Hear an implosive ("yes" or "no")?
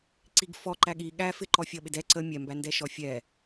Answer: yes